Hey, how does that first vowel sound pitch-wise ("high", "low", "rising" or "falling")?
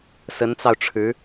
rising